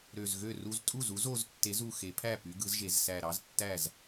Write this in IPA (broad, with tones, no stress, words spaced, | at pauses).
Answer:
ɾø˨˩zɣø˥˩ru˦z tʼu˥˩zu˨˥z o˩˧ztːe˨˥zu˨˩ xe˩˧pʰæ˥˩ py˨˥ɡɯ˨˥zʒe˩˧z sæ˨˩ɾɑ˨˥ztːæ˥˩z